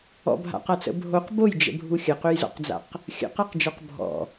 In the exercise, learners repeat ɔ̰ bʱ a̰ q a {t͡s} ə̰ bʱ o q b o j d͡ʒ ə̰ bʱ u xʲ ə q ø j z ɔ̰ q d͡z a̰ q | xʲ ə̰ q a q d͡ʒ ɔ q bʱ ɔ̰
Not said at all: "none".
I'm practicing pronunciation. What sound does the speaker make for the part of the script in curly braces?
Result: t͡s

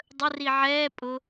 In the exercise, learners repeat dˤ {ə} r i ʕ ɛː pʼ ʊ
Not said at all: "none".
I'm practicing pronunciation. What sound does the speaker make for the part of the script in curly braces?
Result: ə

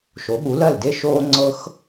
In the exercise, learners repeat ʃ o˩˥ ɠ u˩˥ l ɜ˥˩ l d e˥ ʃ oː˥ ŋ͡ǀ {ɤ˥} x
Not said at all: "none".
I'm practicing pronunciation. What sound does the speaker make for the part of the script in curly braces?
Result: ɤ˥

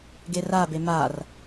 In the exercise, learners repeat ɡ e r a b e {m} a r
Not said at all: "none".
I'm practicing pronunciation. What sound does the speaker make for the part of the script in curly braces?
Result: m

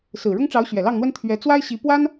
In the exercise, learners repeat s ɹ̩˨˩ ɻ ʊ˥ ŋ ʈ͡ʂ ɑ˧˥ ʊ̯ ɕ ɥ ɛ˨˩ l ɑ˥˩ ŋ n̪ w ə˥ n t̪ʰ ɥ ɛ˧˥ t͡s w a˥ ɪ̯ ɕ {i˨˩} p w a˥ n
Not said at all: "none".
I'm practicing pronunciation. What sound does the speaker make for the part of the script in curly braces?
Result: i˧˥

